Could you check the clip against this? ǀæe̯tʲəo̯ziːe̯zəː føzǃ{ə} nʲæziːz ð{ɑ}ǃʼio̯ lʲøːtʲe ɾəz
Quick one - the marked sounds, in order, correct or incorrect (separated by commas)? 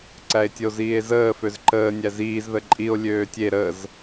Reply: incorrect, incorrect